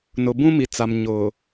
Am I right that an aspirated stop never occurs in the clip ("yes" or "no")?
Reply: yes